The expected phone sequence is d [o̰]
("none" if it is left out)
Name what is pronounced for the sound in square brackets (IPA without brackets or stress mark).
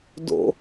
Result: o̰